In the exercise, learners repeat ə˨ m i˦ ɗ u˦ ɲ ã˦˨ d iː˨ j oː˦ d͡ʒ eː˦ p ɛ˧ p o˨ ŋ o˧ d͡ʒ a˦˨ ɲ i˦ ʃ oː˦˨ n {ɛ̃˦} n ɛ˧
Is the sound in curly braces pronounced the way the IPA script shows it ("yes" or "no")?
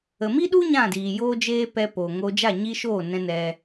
no